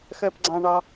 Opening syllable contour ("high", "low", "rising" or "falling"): low